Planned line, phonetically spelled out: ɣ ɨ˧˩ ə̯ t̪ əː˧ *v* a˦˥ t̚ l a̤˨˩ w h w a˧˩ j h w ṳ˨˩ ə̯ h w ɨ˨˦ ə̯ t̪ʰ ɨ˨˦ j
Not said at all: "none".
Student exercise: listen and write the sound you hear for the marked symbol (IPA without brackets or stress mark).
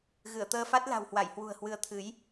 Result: f